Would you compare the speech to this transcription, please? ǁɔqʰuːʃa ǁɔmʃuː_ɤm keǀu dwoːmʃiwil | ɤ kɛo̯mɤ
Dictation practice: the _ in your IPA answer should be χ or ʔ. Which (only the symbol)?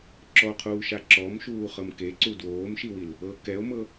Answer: χ